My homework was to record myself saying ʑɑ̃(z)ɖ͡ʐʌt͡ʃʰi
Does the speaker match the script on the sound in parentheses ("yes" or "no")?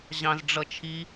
yes